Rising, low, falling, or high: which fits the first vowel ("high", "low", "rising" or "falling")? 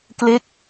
falling